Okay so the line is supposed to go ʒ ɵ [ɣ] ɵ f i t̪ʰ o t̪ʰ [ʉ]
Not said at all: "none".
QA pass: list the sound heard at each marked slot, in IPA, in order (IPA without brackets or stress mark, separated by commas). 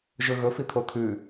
ɣ, ʉ